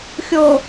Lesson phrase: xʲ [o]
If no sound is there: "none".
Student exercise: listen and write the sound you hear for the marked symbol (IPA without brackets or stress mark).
o